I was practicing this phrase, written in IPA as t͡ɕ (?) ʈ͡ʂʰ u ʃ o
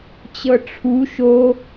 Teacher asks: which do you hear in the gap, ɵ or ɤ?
ɤ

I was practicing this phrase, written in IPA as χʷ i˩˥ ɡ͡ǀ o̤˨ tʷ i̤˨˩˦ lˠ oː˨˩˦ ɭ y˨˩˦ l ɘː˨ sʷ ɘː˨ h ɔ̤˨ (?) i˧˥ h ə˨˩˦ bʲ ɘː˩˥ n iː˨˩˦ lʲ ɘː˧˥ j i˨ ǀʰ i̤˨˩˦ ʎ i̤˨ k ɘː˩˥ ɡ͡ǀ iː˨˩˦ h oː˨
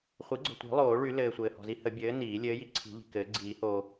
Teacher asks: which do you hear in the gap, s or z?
z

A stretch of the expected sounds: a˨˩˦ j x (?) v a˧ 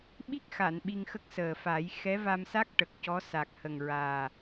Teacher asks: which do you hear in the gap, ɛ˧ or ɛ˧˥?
ɛ˧˥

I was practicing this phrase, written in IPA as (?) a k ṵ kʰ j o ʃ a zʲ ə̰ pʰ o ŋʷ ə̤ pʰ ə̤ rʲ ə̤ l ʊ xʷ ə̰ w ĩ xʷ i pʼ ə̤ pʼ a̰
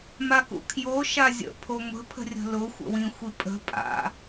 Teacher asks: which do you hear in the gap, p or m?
m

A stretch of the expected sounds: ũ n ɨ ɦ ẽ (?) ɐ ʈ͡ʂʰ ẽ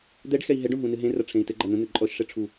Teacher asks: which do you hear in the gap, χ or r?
r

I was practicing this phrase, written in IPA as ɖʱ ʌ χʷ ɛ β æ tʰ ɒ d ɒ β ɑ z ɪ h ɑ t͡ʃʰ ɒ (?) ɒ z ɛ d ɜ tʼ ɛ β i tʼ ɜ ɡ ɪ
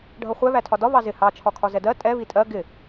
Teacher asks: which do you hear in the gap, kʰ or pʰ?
kʰ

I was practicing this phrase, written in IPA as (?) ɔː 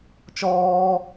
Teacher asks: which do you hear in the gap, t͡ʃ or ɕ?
t͡ʃ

